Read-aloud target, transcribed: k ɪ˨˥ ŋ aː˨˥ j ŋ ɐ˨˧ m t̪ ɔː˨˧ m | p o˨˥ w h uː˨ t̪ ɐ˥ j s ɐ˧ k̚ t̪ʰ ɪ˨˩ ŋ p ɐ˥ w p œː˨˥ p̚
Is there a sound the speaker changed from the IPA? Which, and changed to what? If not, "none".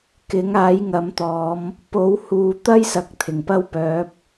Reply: none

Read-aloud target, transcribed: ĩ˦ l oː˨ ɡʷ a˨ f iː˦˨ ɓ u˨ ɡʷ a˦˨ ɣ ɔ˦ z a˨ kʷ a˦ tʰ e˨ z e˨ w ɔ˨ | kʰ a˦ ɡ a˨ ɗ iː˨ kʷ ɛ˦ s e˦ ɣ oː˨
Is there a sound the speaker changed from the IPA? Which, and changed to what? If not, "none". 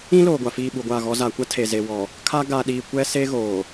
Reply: none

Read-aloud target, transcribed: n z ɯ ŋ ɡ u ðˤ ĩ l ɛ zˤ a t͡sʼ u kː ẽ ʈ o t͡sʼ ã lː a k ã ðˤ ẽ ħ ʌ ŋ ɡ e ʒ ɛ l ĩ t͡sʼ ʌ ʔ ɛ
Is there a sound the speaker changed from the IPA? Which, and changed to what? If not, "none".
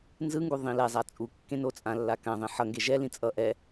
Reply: ʈ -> n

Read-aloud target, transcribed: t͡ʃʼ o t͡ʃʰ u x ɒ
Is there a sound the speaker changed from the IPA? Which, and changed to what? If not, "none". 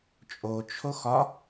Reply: u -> o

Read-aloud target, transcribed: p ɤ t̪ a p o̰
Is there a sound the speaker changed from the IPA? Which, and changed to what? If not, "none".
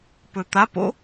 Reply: ɤ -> ɵ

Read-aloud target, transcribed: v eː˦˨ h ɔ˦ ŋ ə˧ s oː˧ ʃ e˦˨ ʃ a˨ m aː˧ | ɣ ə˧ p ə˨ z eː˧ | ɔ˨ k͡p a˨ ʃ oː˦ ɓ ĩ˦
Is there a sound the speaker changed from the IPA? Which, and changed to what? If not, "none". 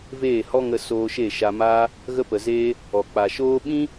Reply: none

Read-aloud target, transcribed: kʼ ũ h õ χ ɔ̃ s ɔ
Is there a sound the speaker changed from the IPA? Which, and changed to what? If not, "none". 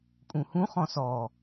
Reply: õ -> ũ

